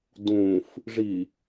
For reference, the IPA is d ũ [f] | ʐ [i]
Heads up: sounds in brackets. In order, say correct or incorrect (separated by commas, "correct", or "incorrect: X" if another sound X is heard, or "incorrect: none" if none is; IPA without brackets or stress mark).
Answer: correct, correct